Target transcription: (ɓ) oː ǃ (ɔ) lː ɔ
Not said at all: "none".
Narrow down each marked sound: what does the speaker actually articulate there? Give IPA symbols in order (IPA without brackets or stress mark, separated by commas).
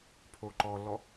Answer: pʰ, ɔ